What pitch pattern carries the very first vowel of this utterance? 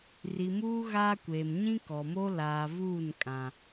low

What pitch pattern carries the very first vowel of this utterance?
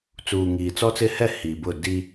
low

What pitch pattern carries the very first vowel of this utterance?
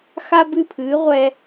high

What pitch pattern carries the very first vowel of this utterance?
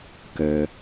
low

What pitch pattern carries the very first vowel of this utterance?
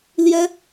high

